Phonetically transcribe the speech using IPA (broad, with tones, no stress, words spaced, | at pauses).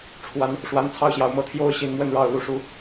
ʈ͡ʂʰwa˨˦n | ʂwa˨˦nt͡sʰɑ˥˨ʊ̯ɕjɑ˨˩ʊ̯ mɤ˥˨t̪ʰjo˦ʊ̯ɕi˨˩n mwə˥˨nɻɑ˥˨ʊ̯ lu˦ʂu˦